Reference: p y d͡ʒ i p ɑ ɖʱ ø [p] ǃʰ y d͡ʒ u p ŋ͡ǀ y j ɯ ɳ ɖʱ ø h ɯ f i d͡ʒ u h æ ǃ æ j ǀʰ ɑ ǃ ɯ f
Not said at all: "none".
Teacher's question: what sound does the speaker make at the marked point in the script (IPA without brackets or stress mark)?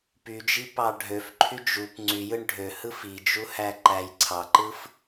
f